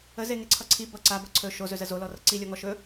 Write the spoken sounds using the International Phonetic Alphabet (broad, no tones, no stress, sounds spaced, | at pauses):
ə z e ŋ e ǀʰ ʌ ǀʰ i b ʌ ǀ a b ʌ ǀʰ ɵ ʃ o z ɵ z ə z o l ɔ r ʌ ǀ i lʲ ɔ ŋ ɔ ʃ ɵ